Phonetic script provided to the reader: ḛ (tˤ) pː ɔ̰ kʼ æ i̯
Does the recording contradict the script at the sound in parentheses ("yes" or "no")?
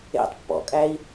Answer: no